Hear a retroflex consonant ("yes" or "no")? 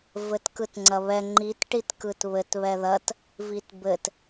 yes